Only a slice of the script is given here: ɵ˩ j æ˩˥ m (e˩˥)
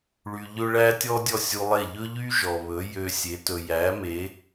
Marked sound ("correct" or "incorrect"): correct